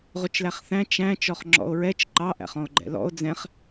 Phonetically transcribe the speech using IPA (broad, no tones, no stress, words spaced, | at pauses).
ʁʊt͡ʃlæχθæ̃ t͡ʃæ̃ t͡ʃɔχŋ͡ǁɔ̰o̯ɹɛt͡ʃ ǃɑ ʔæ̰χɔ̃o̯ɡ͡ǃɛ̰lɔ̰o̯ d͡zɛ̃χ